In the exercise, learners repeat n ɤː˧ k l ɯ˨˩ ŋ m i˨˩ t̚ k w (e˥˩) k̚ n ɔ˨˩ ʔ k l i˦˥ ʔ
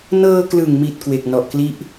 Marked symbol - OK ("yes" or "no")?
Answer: no